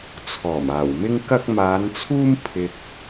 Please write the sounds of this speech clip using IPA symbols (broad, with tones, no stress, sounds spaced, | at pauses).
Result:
t͡sʰ ɔː˨˩ m aː˨˩ w m ɪ˥ ŋ k ɐ˥ k̚ m aː˨˧ n t͡sʰ uː˥ m pʰ ɪ˧ k̚